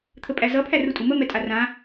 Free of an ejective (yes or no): no